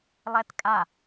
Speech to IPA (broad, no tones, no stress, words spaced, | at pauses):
lˠɛtkʼa